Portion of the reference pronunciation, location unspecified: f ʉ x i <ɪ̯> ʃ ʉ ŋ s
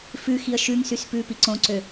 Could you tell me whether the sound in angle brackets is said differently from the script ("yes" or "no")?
yes